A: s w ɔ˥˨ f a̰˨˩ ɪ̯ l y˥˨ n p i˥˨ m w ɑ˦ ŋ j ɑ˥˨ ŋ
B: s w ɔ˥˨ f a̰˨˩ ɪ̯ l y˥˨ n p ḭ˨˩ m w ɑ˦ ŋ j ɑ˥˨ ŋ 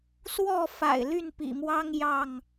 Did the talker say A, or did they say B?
B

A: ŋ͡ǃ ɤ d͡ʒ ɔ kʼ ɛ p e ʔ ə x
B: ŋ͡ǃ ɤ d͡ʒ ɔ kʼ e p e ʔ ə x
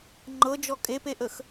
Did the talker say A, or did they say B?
B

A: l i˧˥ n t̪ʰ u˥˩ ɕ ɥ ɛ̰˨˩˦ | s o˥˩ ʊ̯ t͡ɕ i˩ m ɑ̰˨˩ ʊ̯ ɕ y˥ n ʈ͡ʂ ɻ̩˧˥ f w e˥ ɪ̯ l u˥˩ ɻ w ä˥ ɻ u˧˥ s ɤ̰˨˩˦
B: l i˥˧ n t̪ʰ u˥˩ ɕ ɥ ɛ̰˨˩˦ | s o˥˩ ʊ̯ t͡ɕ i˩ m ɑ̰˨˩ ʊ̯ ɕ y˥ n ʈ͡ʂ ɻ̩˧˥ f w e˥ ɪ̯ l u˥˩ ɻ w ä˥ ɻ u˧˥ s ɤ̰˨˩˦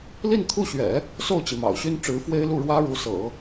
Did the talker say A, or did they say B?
B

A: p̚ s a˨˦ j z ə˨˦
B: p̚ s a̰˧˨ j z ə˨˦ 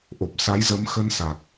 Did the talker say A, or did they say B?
A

